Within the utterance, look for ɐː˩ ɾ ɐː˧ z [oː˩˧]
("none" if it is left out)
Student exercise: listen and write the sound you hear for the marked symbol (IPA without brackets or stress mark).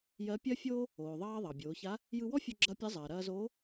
oː˧˥